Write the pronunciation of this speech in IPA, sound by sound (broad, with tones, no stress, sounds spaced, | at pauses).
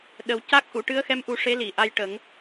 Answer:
ɗ ə˨˩ w c a˦˥ k̚ ʔ u˨˩˨ ʈ ɨ˧˥ ə̯ x ɛ˧˥ m ʔ u˨˩ ʂ e˧˥ l i˨˩˨ ʔ a˧ j ʈ ə˨˩˦ ŋ